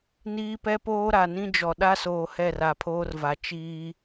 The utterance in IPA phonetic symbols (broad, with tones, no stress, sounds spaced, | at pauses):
n iː˦ p ɛ˦ p oː˦ ɾ a˨ n ĩ˦ d͡ʒ ɔ˨ ɗ a˦ s oː˨ h ɛ˦˨ r a˨ pʰ oː˦ r v a˨ t͡ʃ iː˦